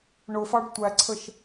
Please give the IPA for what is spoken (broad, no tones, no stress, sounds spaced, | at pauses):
ɳ ʊ f ɑ ɖ tʷ æ ǀʰ ə ʃ